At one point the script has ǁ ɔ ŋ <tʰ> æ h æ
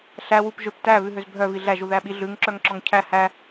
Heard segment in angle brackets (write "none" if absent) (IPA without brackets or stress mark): cʰ